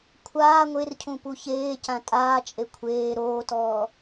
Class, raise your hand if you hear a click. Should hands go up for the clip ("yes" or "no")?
no